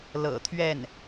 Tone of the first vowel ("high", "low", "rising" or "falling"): low